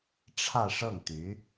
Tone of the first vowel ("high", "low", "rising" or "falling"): falling